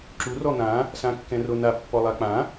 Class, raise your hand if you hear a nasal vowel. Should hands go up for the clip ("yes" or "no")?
yes